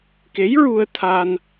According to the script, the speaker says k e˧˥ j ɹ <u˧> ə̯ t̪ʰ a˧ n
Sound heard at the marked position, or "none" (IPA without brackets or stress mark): u˧